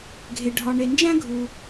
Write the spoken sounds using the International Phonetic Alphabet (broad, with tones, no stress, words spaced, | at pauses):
ɡʱe˩ ɖʱɒ˨ ɳe˨nd͡ʒæ̃˥ ɡʱu˩